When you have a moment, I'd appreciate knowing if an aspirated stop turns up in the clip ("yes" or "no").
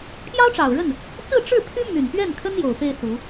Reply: yes